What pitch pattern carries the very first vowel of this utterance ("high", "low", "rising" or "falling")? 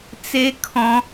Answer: high